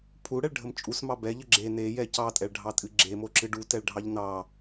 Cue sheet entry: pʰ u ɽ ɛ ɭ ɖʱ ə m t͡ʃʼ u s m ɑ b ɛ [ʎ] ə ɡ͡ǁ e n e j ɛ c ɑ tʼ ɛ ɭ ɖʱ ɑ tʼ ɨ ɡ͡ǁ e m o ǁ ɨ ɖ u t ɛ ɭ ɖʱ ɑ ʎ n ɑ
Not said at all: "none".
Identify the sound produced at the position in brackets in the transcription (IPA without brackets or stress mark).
ʎ